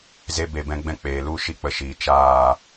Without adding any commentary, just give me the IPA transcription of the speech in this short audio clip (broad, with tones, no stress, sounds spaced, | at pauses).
z e˦ b e˦˨ b ɛ̃˦ ɡ͡b ɛ̃˦ k͡p eː˨ l u˦˨ ʃ i˦ k͡p ə˧ ʃ iː˨ t͡ʃ aː˦˨